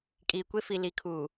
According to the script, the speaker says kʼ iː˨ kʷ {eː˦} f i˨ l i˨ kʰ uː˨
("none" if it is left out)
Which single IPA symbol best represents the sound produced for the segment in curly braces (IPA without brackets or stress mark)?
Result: e˦